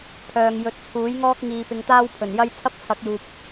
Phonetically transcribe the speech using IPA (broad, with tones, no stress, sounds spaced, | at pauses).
pʰ œː˨ ŋ j ɵ˨˥ t̚ t͡sʰ uː˨˥ j ŋ ɔː˥ k̚ ŋ iː˨ p ɪ˨˧ ŋ t̪ aː˥ w pʰ ɵ˨˩ n j ɐ˥ j t͡sʰ ɐ˥ p̚ t͡sʰ ɐ˨˥ k̚ j uː˨ p̚